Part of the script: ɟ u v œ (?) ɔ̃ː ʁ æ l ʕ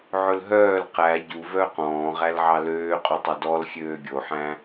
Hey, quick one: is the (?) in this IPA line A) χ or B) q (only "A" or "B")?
B